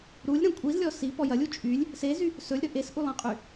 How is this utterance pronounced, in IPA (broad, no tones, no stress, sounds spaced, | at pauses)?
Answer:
ɾ u lʲ ɾ ɐ̃ kʷʼ i z lʲ ɔ s i p ɔ j ɐ lʲ u t͡ʃʼ y lʲ | s e z y | s ɵ lʲ ɾ ɵ ʔ e s ʔ u lˠ ĩ qʼ y